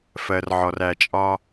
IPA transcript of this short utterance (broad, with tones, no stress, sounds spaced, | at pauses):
f ɜ˨ r ʕ ɔ˨ r æ˨ t͡ʃʼ ɒ˦